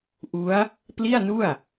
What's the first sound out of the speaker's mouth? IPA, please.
ʔ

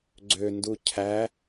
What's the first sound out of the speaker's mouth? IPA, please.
ɡ͡ǀ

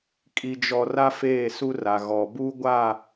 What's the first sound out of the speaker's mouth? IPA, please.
kʼ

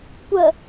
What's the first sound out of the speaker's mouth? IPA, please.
kʷ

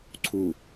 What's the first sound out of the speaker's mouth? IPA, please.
ǀʰ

